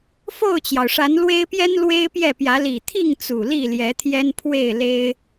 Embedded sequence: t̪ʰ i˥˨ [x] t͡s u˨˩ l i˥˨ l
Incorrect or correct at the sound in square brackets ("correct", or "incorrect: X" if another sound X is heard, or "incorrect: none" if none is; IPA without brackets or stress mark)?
incorrect: ŋ